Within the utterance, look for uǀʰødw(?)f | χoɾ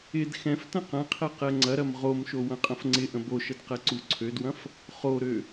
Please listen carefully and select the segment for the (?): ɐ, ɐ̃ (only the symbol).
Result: ɐ̃